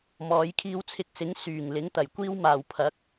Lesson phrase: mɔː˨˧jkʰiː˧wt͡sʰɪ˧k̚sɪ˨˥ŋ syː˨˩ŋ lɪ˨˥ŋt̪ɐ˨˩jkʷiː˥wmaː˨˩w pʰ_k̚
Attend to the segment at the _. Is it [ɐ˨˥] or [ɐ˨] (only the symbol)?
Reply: ɐ˨˥